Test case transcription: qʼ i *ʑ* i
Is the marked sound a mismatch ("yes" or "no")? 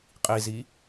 yes